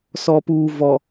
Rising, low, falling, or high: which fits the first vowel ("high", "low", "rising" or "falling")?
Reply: low